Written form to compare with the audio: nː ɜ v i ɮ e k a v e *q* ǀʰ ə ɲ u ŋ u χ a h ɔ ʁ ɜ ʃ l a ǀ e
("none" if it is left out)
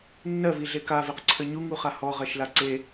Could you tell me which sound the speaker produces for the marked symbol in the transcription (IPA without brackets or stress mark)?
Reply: q